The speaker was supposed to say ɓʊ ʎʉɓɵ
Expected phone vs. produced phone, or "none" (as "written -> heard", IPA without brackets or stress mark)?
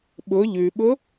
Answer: ɵ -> ʊ